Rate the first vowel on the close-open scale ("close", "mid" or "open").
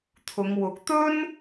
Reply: close